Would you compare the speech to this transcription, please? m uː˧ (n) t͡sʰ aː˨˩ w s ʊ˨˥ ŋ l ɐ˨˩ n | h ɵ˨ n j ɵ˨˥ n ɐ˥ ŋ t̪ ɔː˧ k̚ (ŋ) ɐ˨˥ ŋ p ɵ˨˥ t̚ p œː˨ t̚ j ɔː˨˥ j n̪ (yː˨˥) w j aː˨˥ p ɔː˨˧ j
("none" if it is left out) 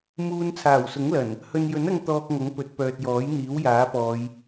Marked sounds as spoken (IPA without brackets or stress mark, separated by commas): n, ŋ, iː˨˥